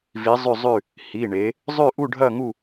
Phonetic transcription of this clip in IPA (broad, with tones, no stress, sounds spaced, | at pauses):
v i˧˥ zˤ ʉ˥˧ zˤ ʉ˥˧ | h i˧˥˧ ɳ e˧˥ | zˤ ʉ˥˧ ʔ u˥˧ ɖʱ ɐ˥˧ ŋ u˥˧